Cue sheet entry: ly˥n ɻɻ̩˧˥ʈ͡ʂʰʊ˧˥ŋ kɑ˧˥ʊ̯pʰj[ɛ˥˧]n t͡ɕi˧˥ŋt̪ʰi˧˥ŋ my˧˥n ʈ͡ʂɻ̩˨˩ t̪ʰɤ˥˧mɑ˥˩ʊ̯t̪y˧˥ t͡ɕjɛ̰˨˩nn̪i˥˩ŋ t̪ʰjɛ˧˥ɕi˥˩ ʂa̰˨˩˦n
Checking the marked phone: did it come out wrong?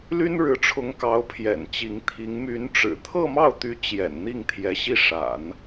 yes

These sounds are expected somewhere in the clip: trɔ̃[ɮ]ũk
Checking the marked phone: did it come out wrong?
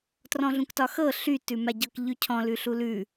no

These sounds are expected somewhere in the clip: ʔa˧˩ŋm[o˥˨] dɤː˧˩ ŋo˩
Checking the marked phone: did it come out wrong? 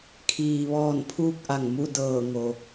yes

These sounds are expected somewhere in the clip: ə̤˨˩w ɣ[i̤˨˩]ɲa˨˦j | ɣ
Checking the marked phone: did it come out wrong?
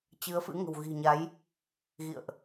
no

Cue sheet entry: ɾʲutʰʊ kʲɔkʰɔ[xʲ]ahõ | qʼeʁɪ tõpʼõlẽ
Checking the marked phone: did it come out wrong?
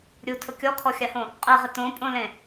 no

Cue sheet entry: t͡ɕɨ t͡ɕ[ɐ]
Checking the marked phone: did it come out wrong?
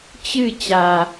yes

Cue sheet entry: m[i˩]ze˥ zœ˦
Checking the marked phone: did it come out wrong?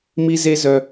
yes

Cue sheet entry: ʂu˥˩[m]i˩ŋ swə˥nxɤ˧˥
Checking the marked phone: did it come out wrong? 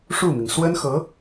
no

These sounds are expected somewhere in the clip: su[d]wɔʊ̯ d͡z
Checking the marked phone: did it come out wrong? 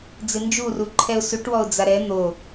yes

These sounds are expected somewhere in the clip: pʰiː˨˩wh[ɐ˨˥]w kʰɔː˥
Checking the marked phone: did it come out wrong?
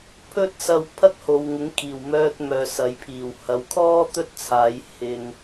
no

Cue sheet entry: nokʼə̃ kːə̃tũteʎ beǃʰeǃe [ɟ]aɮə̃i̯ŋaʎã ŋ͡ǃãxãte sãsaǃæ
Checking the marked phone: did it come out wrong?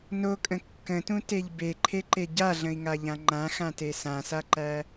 no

